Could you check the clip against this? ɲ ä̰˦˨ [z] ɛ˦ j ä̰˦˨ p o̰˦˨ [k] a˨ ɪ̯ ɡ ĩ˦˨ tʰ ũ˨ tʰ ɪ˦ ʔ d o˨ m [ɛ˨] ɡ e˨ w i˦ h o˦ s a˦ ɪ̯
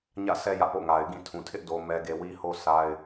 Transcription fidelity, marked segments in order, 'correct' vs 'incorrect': incorrect, incorrect, correct

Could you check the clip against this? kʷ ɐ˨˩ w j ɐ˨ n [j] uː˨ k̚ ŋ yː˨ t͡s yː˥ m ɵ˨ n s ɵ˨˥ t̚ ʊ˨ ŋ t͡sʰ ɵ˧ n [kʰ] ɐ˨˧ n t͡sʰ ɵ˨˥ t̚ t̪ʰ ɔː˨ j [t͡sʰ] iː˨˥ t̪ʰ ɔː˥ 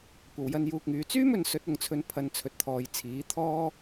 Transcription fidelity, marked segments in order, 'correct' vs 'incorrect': correct, incorrect, correct

